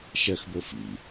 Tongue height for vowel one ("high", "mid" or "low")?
mid